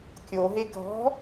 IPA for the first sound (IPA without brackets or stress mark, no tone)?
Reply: kʲ